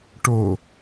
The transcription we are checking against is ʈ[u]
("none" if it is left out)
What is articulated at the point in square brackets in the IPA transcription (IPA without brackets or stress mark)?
o